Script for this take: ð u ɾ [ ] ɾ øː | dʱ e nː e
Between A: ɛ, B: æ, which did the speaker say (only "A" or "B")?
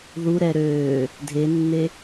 A